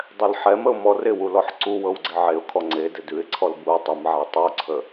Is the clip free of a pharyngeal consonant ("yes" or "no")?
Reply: no